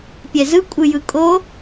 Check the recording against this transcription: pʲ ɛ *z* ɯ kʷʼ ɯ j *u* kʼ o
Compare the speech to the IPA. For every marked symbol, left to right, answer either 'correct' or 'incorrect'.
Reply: correct, incorrect: ɯ

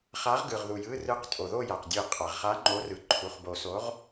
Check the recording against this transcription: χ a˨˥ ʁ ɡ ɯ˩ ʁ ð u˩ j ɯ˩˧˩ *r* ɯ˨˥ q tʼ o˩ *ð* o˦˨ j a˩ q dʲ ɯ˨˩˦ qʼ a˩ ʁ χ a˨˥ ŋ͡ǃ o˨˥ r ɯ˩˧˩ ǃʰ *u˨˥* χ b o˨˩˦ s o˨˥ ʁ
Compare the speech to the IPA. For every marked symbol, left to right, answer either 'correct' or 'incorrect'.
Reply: correct, correct, incorrect: u˩˧˩

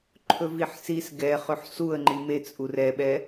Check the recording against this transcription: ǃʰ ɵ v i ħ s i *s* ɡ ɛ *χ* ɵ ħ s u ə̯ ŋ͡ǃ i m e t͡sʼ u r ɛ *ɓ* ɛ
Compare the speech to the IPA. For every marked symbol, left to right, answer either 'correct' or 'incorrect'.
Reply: correct, correct, correct

